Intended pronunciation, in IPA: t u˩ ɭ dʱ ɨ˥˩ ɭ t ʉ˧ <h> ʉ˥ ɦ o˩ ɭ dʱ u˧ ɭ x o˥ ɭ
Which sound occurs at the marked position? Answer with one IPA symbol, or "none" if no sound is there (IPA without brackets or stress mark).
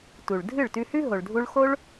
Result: h